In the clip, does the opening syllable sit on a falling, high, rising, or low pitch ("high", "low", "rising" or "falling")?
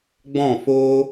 falling